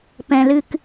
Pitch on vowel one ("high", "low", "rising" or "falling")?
low